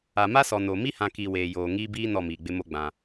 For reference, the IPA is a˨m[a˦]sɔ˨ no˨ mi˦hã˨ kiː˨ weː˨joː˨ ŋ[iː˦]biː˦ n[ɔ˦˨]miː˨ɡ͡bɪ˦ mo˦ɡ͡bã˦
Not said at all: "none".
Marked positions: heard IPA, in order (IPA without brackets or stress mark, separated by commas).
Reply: a˦, iː˦, ɔ˦˨